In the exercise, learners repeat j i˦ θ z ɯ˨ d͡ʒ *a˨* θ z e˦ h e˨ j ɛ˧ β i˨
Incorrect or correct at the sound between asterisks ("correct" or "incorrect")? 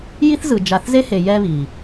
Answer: correct